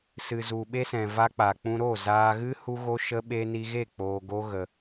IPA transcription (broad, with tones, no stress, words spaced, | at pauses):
sɨ˨zu˨ɓe˧sɛ̃˨ va˧k͡pa˨k͡pũ˧ ɾo˦˨ zaː˧ɣɨ˦ hu˦ɣo˦ʃə˦ ɓe˧ni˧ɣe˦˨ k͡poː˧ɡo˦ ɣə˧